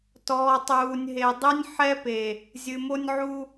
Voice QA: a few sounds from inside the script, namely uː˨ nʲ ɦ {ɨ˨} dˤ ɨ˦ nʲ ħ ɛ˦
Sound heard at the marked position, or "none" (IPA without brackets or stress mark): e˨